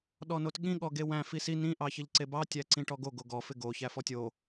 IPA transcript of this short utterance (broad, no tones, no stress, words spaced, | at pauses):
ɗɔnotɠĩ ɠɔɡewæ̃ fisi nĩ ʔɑçɪʎǀebɑ tʲæǀĩʈɔɡo ɡoɡɔ fɪɡo çæfɔtʲo